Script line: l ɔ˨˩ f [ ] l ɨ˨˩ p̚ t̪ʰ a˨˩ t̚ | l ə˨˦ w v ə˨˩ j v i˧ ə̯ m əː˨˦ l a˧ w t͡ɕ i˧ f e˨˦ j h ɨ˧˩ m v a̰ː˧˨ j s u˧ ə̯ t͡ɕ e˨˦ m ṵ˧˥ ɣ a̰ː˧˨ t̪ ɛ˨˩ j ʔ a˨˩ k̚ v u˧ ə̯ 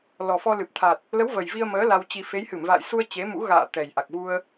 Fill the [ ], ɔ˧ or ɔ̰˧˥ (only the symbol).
ɔ˧